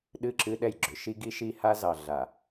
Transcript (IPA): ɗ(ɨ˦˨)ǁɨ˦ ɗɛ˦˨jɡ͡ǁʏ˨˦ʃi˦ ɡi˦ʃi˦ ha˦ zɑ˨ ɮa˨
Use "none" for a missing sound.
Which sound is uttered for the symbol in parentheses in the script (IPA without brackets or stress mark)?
ɨ˦˨